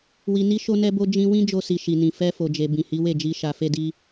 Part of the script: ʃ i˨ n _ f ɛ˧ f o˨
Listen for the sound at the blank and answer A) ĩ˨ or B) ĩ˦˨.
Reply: A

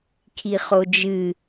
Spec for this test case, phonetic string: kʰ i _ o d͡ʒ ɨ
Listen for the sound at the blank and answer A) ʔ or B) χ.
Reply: B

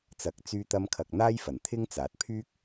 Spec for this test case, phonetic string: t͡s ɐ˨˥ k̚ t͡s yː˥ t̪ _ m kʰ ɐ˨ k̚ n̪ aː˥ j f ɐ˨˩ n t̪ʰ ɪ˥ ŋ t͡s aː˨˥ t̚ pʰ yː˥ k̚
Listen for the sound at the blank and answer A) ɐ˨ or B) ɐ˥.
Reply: B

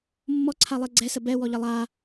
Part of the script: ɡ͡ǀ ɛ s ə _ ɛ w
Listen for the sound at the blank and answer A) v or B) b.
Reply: B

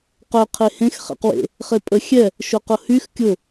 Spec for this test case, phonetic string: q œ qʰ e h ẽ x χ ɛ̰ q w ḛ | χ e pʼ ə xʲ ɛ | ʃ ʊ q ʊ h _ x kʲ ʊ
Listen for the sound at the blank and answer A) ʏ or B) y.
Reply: B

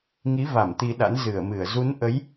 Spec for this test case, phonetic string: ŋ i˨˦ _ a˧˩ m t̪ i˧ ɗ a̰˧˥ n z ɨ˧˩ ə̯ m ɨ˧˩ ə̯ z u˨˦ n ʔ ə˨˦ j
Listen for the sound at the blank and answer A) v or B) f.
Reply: A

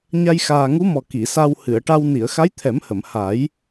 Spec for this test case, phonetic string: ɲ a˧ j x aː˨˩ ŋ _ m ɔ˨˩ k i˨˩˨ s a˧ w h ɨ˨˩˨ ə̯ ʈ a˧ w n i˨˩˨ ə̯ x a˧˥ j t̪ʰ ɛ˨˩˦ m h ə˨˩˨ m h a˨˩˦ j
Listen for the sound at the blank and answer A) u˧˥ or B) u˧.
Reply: A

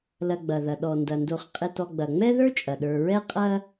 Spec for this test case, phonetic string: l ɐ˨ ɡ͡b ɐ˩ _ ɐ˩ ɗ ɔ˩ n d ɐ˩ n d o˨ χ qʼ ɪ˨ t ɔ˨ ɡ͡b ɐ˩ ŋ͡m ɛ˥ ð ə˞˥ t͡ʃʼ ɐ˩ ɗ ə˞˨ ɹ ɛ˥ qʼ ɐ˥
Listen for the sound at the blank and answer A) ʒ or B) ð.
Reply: B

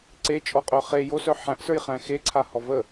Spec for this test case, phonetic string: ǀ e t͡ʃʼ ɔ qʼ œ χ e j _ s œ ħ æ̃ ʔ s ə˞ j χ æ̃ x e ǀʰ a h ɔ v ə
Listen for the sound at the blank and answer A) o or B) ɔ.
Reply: A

